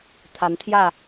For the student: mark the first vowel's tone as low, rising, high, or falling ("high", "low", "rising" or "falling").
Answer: rising